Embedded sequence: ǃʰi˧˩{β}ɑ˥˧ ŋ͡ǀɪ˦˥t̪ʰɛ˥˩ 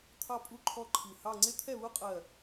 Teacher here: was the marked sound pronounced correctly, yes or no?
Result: no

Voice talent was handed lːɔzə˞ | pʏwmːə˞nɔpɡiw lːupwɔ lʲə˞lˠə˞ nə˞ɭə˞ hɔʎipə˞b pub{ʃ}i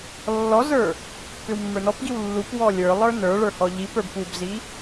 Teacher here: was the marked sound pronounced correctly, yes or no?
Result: no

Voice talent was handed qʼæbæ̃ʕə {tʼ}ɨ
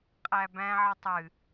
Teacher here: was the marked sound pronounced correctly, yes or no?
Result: no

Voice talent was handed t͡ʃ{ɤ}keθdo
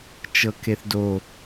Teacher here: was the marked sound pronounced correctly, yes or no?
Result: yes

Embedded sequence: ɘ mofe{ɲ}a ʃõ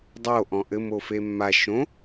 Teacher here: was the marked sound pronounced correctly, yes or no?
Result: no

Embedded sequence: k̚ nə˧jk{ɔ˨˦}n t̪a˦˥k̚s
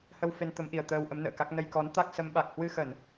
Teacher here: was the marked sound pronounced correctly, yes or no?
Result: yes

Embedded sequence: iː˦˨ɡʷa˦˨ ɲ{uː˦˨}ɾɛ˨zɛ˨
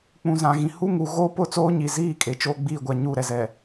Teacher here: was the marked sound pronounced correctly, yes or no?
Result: yes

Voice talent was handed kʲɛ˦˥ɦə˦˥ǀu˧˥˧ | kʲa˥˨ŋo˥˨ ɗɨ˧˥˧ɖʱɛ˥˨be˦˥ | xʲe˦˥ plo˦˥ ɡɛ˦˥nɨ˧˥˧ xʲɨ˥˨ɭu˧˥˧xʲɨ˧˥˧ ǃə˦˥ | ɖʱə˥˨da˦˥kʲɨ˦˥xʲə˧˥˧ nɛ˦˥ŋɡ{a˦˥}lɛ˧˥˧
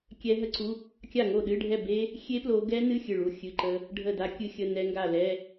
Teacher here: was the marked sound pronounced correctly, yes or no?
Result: no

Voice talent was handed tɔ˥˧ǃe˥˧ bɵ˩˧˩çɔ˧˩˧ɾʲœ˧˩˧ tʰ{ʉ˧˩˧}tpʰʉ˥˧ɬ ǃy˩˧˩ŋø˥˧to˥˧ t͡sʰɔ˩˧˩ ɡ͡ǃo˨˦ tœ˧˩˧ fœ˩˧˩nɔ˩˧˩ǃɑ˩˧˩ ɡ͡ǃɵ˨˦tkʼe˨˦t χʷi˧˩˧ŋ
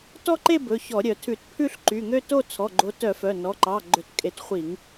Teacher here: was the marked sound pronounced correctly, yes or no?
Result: yes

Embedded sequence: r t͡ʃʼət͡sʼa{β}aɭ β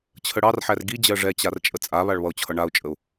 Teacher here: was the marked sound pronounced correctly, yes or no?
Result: yes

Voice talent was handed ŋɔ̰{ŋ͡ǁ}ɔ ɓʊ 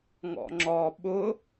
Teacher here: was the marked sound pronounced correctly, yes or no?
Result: yes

